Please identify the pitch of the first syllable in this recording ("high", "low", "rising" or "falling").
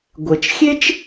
low